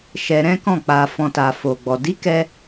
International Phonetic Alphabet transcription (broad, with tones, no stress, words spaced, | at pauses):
ʃɛ˧ɾɛ̃˦kɔ̃˦˨ k͡pa˨ fɔ̃˨ta˨ fo˨ɡ͡bɔ˨ di˨˦kɛ˧